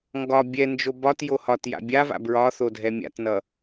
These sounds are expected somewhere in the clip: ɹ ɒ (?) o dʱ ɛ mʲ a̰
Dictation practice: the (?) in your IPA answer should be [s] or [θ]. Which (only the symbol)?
θ